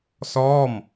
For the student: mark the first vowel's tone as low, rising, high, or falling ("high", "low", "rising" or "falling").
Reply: falling